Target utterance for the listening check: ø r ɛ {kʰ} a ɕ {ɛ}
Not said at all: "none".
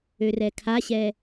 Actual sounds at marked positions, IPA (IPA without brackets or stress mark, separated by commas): kʰ, ɛ